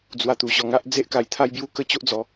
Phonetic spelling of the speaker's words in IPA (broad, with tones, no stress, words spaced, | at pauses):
d͡zwa˧t̪u˨˩ɕɔ˧ŋa˦ʔ d͡ze˦ʔka˧jt̪ʰa˦jbju˦ kə˦t͡ɕo˦ʔd͡zɔ˨˦